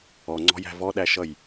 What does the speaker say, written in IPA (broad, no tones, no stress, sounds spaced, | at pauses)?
ɔ ŋ͡ǀ ɔ̤ j æ̤ v ɔ ɗ æ ʃ ʌ j